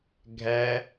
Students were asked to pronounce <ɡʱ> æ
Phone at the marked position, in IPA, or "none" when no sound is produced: ɡʱ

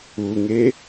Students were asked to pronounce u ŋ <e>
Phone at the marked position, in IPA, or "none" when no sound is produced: e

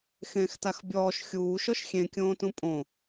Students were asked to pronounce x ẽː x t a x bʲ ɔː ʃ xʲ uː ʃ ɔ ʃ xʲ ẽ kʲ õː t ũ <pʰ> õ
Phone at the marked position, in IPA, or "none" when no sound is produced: pʼ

